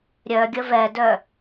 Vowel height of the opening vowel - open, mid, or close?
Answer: mid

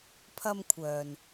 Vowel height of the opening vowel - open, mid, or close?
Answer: open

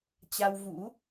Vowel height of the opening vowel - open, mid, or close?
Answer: open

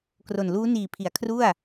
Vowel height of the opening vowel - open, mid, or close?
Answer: mid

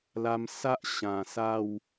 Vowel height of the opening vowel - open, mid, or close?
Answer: open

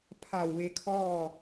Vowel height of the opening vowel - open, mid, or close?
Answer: open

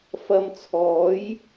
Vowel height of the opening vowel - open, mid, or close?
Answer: open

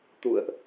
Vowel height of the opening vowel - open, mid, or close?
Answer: close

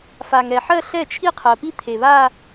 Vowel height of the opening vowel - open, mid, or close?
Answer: open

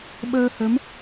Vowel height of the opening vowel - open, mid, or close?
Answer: mid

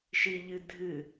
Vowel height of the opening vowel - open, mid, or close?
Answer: close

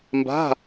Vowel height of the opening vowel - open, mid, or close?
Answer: open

